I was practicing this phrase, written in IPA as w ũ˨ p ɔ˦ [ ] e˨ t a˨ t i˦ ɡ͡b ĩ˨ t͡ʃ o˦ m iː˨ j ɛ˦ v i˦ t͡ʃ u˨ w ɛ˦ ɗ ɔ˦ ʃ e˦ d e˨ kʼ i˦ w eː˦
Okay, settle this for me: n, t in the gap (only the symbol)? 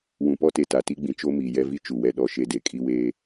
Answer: t